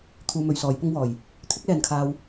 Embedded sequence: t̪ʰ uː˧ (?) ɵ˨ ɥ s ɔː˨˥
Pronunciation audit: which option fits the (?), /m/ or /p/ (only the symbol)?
m